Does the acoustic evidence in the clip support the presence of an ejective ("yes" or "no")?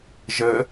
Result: no